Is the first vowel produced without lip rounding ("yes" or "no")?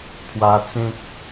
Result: yes